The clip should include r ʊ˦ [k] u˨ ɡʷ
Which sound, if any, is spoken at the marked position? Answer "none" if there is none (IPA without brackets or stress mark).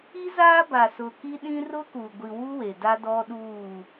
k